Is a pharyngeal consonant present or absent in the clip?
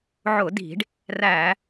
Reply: present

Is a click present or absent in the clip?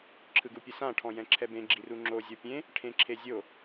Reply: present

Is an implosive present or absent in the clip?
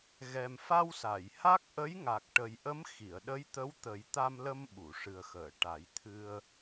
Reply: present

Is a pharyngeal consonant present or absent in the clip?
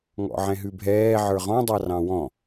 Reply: present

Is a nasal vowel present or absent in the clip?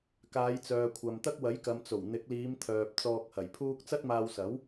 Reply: absent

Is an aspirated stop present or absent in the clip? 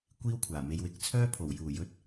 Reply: present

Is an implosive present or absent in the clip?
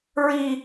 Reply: absent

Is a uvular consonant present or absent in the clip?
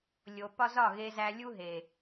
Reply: absent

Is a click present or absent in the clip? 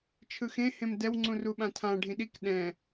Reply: present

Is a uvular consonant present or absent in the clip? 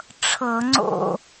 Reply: absent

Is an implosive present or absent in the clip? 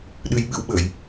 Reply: present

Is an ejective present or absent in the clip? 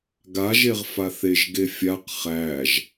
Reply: absent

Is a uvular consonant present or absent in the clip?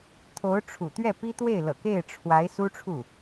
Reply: absent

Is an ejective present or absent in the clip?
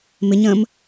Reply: absent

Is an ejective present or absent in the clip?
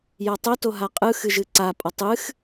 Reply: present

